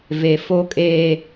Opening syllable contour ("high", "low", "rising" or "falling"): low